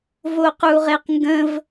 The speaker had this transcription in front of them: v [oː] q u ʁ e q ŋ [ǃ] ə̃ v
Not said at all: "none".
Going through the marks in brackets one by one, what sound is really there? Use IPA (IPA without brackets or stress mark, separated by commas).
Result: o, ɡ